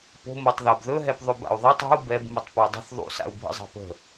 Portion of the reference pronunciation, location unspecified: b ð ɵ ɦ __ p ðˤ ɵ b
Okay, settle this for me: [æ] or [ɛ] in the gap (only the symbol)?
ɛ